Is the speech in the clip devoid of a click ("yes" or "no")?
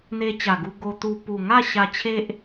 yes